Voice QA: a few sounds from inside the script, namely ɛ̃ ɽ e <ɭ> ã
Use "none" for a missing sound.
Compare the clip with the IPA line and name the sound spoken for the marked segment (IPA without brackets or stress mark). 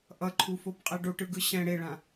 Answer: ɭ